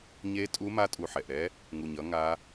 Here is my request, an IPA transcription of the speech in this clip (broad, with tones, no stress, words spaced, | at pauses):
ɲe˦˥ tʼu˦˥ma˦˥ tʼu˨˩ħɛ˨˩ʔɾɛ˦˥ | ŋu˨˩ɲʌ˦˥ŋa˦˥